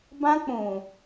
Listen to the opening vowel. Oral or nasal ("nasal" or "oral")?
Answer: nasal